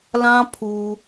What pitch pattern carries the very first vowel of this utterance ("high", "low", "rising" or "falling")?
high